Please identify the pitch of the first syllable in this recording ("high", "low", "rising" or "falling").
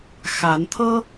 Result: rising